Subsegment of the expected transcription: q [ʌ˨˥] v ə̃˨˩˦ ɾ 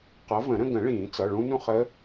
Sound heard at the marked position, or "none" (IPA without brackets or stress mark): ʌ˨˥